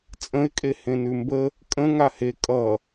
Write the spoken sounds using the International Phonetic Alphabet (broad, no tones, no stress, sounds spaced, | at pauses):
t͡sʼ ə̃ ɪ̯ kʼ e h ẽ n ʉ m b ə | kʼ ə̃ ŋ a h e kʼ ʌ